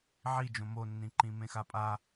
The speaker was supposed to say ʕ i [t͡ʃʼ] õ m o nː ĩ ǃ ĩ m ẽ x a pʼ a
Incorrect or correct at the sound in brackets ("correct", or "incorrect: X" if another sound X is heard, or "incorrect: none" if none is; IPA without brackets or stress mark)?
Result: incorrect: d͡ʒ